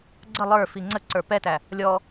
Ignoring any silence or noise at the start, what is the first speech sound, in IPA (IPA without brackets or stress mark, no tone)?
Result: ɡ͡ǀ